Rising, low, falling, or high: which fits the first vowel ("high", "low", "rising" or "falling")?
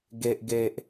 low